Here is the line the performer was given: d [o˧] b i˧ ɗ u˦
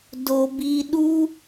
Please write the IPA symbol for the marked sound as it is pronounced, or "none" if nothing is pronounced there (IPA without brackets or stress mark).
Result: o˧